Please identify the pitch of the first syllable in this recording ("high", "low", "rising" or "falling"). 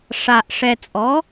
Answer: low